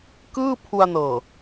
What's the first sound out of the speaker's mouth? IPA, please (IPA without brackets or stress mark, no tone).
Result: k